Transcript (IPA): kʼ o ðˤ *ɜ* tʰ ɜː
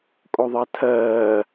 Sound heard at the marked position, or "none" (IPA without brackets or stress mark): ɜ